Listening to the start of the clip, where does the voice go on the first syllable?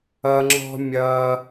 low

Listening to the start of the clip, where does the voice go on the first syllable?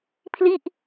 falling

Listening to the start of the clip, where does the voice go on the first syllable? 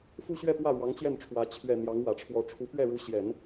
high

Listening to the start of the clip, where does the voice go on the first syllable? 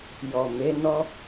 low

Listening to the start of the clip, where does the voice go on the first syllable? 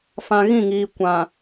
low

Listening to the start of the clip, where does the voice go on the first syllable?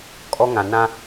high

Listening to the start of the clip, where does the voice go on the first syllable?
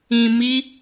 low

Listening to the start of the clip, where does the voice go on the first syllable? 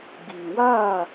low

